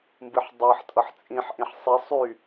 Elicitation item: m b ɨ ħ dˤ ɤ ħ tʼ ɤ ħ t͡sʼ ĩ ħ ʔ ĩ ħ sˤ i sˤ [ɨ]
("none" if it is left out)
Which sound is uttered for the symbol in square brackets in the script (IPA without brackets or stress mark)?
y